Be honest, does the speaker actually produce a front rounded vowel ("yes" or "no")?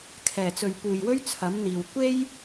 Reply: no